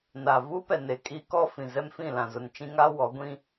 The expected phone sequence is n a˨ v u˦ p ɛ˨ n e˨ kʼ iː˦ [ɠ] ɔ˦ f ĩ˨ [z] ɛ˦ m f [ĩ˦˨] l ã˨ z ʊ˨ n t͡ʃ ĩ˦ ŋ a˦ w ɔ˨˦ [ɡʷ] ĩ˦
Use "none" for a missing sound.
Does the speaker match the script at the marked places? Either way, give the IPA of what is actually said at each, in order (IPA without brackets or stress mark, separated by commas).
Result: k, z, ĩ˦˨, ɡʷ